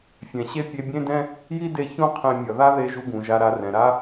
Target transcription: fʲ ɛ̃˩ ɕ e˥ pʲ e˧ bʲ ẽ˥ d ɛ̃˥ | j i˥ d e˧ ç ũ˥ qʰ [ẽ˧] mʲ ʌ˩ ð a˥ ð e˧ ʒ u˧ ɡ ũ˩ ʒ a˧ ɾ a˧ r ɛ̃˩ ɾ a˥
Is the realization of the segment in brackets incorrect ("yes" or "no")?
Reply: no